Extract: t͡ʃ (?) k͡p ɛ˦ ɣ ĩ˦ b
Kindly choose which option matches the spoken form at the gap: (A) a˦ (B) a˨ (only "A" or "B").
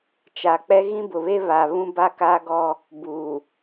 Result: B